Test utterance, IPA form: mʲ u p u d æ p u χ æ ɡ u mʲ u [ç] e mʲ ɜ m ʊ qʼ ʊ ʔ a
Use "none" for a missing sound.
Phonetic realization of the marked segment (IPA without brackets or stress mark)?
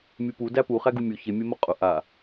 ç